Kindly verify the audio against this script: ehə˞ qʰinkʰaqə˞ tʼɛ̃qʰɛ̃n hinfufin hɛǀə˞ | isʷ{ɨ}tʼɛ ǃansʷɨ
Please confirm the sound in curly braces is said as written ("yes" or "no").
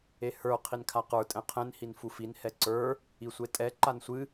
no